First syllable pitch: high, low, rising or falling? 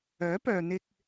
rising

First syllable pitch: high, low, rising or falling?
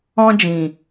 high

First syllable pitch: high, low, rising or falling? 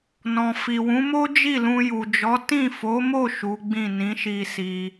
low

